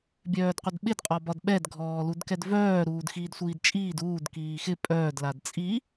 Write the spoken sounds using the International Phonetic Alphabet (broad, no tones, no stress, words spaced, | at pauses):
bʲœːdqʷɘdɓɪd qʼɒbɒdɓɛd ɡʱɔːludkɛdvœː ɾuːdxiːdsʷiːdt͡ʃʼiːd uːd kiːxɪ pʼœːd ladt͡sʼi